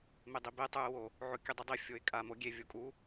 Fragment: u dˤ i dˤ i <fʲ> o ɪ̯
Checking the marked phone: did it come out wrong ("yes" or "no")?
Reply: no